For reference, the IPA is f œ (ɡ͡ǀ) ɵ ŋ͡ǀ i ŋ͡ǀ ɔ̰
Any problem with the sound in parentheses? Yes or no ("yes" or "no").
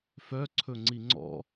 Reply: yes